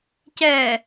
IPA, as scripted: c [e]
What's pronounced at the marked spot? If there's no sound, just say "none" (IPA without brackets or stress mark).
ɛ